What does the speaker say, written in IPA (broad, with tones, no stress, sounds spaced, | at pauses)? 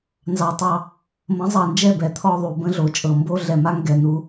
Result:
n z ɑ˨ tˤ ɑ˧ | m ə̃˨˦ zˤ ɑ˨ n d͡ʒ ɛ˦˨ b ɛ˨˦ t̪ʰ ɔ˧ ðˤ u˨ b ə̃˦ ɮ o˨ t͡ʃʼ ɤ˨ m b o˦ ɮ ɛ˨ m a˦ ŋ ɡ ɛ˦˨ n u˦